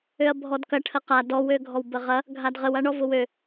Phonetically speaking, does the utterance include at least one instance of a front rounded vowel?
yes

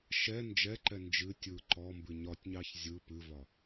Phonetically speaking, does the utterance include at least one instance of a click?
yes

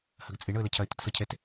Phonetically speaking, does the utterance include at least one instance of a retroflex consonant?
yes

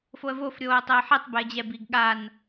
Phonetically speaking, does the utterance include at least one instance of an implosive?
yes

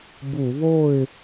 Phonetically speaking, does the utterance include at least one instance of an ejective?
no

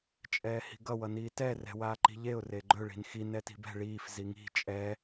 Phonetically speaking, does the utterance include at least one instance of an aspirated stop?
no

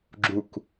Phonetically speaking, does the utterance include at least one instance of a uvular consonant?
no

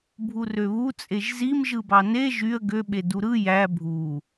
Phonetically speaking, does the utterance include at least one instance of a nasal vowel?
no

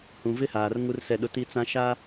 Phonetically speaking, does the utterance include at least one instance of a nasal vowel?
yes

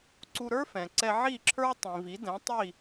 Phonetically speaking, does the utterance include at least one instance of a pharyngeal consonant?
yes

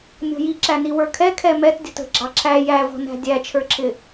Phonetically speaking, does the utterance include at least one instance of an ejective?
no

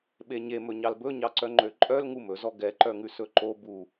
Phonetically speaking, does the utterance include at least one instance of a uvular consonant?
no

